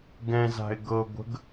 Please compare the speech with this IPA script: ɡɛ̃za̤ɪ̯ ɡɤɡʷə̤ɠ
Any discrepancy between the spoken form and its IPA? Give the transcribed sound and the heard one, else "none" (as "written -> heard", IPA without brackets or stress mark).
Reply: ɠ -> ɡ